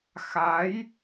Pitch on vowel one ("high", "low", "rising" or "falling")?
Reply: rising